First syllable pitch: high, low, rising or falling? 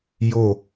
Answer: falling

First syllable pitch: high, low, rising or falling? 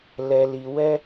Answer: low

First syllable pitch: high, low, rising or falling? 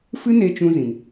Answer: high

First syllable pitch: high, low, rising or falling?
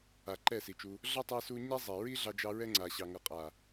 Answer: low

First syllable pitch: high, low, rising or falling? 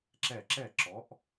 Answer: falling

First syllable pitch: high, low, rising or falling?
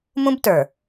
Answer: high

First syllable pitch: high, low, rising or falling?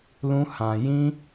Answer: high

